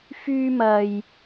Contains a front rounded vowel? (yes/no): yes